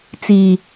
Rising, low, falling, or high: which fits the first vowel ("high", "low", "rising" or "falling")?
low